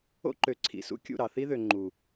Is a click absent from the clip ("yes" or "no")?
no